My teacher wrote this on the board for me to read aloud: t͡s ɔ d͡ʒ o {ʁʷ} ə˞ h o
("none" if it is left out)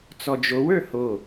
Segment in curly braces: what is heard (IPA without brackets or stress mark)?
w